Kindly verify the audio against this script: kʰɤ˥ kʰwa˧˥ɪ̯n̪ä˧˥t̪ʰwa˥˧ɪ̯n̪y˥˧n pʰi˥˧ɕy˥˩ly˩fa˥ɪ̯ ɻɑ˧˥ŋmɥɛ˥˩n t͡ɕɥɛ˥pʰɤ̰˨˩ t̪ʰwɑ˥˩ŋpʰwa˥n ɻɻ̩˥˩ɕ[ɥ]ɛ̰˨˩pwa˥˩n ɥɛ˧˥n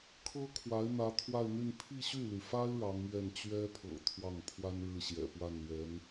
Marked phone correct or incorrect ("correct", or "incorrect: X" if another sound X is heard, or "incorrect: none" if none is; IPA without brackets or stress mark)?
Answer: incorrect: j